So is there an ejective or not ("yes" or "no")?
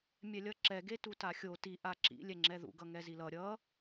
no